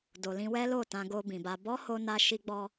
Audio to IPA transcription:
d o˨ l ĩ˧ w ɛ˦ l o˦˨ t ã˧ ɡ o˧ b ĩ˨ b a˧ b ɔ˦ h o˦ n a˦ ʃ i˦ ɡ͡b ɔ˦

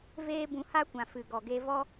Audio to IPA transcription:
v eː˦ b ũ˧ h a˦ kʷ ã˨ f ɨ˨ ɡ ɔ˨ ɡ e˧ v ɔ˦

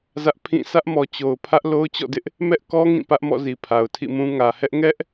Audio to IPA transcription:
z ä˦ ʔ pʰ ĩ˦˨ s ä˦ ʔ m ɔ˨ t͡ɕ o˨ ʊ̯ pʰ ä˦ ʔ l o˦ ʊ̯ t͡ɕ ɔ̰˦˨ d ɪ˦ ʔ | m ɛ˦ ʔ k ɔ˦ ŋ ĩ˦˨ p ä˦ ʔ m ɔ̰˦˨ z i˨ pʰ a˨ ʊ̯ tʰ ḭ˦˨ m ũ˦ ŋ ä˨ h ɛ˦ ʔ ŋ ɛ˦ ʔ

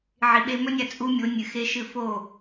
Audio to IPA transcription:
ʕ i˨ ɓ e˧ m ɵ˦ nʲ a˨ t͡sʼ u˦ mʲ o˨˦ nʲ ɨ˨ x e˦ ʃ ɨ˦˨ f o˦˨

